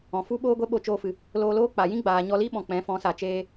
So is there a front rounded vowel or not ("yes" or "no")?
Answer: no